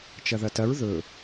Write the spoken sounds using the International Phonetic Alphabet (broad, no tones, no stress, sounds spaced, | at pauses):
t͡ʃ ɐ ð ɐ t ɐ ɹ ð ɵ